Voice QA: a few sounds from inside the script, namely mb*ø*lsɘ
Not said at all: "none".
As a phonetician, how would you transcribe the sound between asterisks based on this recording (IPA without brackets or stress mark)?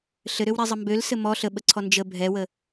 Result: ø